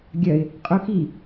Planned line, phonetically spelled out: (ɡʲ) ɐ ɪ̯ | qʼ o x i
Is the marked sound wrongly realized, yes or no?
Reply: no